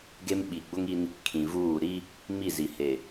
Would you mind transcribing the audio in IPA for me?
ɡ e˦ m ɓ i˨ ɡ͡b ʊ˦ ŋ i˦ n | kʰ ĩ˨ v uː˦˨ ɾ i˦ | m i˦˨ z i˨ h e˨

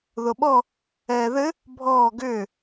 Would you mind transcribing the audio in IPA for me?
ð o ɓ ɔ | ɛː ð ɘ | bʱ ɔː ɡ ʏː

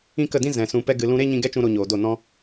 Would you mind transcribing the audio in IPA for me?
ĩ˦ k ə˦˨ d ĩ˦ z ɛ̃˨ s ũ˧ p ɛ˦ ɡ ɨ˧ l ũ˦ ɾ e˦ ɲ ĩ˧ ɡ ɛ˦ t͡ʃ ũ˧ ɾ o˧ ɲ oː˨ d o˦˨ n ɔ̃˦

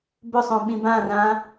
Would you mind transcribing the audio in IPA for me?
b ʊ sˤ õ ɓ ĩ b ã r ã

